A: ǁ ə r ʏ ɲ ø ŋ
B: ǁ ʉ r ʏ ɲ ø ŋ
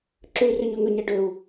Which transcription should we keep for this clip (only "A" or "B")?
B